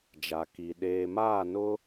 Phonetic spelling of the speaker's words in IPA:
d͡ʒ a˨ k i˨ ɗ eː˨ m aː˦˨ n ʊ˦

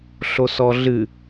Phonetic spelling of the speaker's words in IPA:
ɬ o s ɔ ɮ ɨ

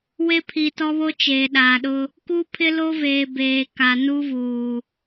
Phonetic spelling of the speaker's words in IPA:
w e˦ pʰ i˨ t ɔ˦ β o˦ t͡ʃ eː˨ ɗ aː˨ ɗ ʊ˦ | k u˦ pʰ ɪ˦ l o˦ v eː˨ b eː˨ k a˨ n u˦ v uː˨

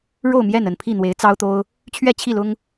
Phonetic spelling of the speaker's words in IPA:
ɻ o˥˨ ʊ̯ m j ɛ˥˨ n ə˥˨ n pʰ i˥˨ n̪ w e˨˦ ɪ̯ t͡s ɑ˦ ʊ̯ t̪ o˦ ʊ̯ | t͡ɕʰ ɥ ɛ˥˨ t͡ɕʰ i˥˨ l ʊ˦ ŋ

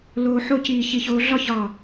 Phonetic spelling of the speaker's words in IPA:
l oː˧ ħ o˥˧ c iː˧˩ ç i˧˩ ç oː˧ ɮ ɒ˥˧ ç ɒ˧˩

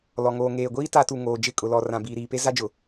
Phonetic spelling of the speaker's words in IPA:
l ɔ˨ ŋ oː˨ ŋ eː˨ ɡʷ iː˦ t a˦ t u˨ ŋ oː˨ d͡ʒ ɪ˦˨ kʼ ʊ˨ l ɔ˨ r ã˨ b iː˨ ɾ iː˨ p e˦ z a˦ d͡ʒ ʊ˨

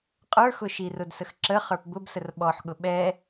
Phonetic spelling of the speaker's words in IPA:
qʼ ə˞ x ʊ ʃ i r ʊ d s ə x ǁ ə χ ə˞ p b ʊ b s ə r ɓ ɔ ħ ɠ ʊ ɓ ɛ

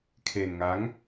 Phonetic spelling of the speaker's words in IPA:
kʰ e˧ n ŋ a˦˥ ŋ

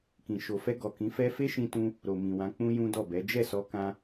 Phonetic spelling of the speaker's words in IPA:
k ĩ˨ ʃ o˨ f ɛ˧ ɡ ɔ˨ k ĩ˨˦ f ɛ˦ f e˦ ʃ ĩ˧ t ũ˧ | ɾ o˨ m ĩ˨ w ã˨˦ k͡p ũ˦ j ũ˦ d ɔ˦˨ b ɛ˨˦ d͡ʒ ɛ˦˨ s ɔ˧ k ã˧

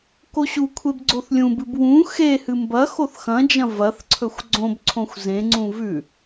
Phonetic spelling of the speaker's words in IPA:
k o ɕ u kʷʰ e b ɡ͡ǀ o θ lʲ ũ b ɨ b w ũ x e h ɨ m b ɐ x o θ x ɐ̃ d͡ʒ ɐ̃ v ɐ θ ǀʰ ɵ xʷ ɡ͡ǀ õ b ǀʰ õ xʷ z ẽ ŋ͡ǀ ũ v ʉ

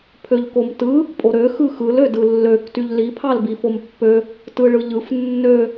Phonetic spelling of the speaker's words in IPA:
pʰ ø ʎ k o m t ɯ | pʼ o ɾ ø x ɯ x ɯ l ø d ɯ lː ø k t y ʎ l i pʰ ɑ l b i f o m pː ø | t ɯ ɭ ɯ ʎ ɯ f nː ø

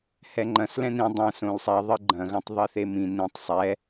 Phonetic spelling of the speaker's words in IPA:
h ɛ ŋ͡ǃ ɐ̃ s l ɛ̃ n ĩ dˤ ɐ̃ s õ l sˤ ɛ ðˤ ɨ ɡ͡ǃ ɐ̃ ɣ ɐ̃ tˤ ðˤ i θ e m ĩ n ĩ tˤ sˤ ɛ

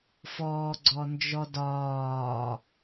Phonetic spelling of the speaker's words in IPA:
f ɔː ɡ͡ǀ ɔ n d͡ʒ ɔ d ɒː

